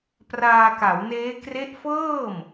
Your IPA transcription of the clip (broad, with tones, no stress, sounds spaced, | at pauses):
p r aː˧ k a˩˦ w n eː˦˥ k r e˦˥ ʔ f ɤː˥˩ m